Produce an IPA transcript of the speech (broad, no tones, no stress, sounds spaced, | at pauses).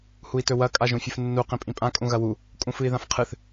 h u i̯ t ɵ w ɐ kʼ a ʒ ũ fʲ ɨ f nː u q ĩ pʼ ĩ pʼ ã kʼ ũ ɣ ɐ w u | kʼ ũ f ɨ i̯ ð ã f qʰ ɨ θ